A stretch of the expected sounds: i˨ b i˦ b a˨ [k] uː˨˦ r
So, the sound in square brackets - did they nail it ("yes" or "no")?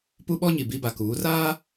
yes